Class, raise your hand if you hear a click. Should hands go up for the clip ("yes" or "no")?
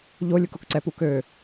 yes